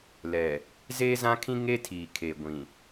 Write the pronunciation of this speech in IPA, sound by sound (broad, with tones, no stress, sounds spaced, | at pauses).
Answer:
l ɛ˨ | z eː˦ z ã˦ kʰ ĩ˦ ŋ e˦ tʰ iː˨ kʰ e˨ ɡʷ ĩ˨